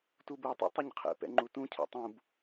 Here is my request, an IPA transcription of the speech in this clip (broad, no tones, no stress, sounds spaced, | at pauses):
t u b u tˤ ḭ tˤ u ɲ qʰ ɛ̰ p ɛ̰ ŋ͡ǃ u t ũ cʰ ɛ̰ tˤ ũ b